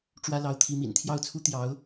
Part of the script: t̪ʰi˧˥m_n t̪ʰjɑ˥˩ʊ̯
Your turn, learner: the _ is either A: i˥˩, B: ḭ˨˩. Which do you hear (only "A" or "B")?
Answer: B